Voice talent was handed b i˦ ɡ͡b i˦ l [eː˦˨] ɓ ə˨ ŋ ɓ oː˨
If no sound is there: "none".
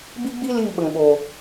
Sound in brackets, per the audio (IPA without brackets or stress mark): iː˦˨